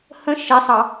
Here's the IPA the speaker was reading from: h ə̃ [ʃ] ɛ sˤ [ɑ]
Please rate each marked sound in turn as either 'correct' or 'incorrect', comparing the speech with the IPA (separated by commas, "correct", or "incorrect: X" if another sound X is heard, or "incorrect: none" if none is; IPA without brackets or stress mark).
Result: correct, correct